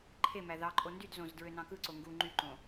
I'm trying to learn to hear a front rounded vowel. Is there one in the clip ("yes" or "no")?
yes